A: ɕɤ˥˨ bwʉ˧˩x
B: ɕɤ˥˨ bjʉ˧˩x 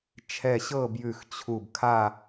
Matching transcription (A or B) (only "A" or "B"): B